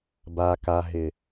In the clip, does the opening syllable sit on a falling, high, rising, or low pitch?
low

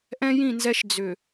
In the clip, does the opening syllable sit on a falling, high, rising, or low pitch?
high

